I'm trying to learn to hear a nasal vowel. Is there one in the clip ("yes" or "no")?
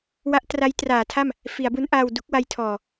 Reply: no